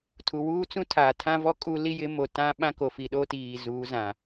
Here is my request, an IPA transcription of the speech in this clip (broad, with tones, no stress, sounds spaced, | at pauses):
tʰ u˨ w uː˦ t͡s ũ˦ tʰ aː˨ tʰ ã˦ v ɔ˦ kʼ u˦ l i˦ j ɪ˨˦ m o˨ t ã˦ ɓ ã˦ k o˨ f i˨ ɗ o˦ t iː˨ z uː˨˦ z ã˨